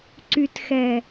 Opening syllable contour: low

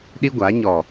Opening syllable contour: high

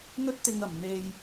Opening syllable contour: high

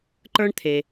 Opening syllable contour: high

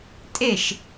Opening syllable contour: falling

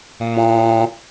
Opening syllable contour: high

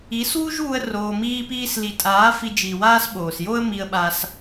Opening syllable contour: rising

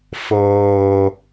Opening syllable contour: low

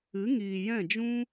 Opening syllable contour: rising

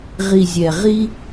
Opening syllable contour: low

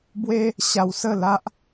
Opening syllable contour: high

